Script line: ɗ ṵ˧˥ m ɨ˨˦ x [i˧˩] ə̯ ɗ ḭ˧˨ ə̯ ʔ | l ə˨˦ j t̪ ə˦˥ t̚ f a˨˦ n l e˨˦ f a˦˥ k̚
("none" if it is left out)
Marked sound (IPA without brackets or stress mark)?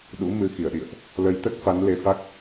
i˧˩